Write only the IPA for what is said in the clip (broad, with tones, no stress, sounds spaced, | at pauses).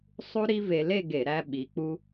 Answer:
sˤ u˥ ɾ i˥ v e˧ l e˥˧ ɡ e˧˩˧ ɾ æ˧ ɓ i˩˧ k͡p u˧